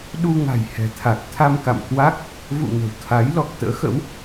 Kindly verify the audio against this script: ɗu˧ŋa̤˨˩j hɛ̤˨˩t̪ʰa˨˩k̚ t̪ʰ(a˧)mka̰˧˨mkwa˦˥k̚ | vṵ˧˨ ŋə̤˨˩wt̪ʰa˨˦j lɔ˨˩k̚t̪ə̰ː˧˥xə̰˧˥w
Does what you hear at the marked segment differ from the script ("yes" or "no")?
no